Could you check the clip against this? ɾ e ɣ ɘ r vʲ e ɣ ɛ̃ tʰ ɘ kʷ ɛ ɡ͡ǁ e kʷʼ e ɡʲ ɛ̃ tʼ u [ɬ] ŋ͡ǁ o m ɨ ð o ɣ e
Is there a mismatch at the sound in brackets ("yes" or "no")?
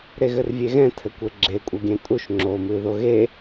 yes